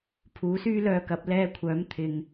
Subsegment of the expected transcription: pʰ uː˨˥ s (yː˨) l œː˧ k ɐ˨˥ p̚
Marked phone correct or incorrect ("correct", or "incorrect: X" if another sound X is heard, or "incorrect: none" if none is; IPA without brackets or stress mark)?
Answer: incorrect: yː˥